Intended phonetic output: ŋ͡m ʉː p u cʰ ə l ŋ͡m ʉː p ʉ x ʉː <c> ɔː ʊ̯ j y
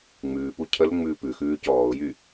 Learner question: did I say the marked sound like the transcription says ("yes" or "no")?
yes